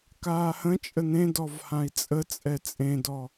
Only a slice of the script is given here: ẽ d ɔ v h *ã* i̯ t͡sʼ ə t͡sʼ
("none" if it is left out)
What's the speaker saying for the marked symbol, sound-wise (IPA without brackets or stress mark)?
ã